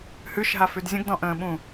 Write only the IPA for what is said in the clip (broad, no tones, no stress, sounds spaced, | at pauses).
h ʉ ʃ ɦ a f ʉ d zʲ ə̃ ɡ d ɔ̃ ʔ ə̃ː ɓ ũ